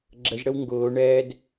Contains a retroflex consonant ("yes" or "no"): yes